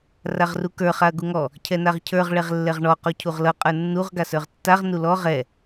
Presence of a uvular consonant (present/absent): present